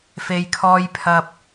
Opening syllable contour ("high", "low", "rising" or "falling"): low